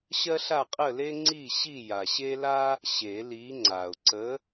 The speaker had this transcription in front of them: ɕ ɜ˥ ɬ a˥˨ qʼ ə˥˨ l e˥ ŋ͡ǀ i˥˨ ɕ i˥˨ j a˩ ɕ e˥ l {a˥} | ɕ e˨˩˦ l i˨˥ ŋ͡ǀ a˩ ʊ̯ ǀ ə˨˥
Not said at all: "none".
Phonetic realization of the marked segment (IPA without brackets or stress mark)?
a˥